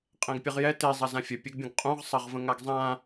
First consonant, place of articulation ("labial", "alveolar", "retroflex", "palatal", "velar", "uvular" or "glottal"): uvular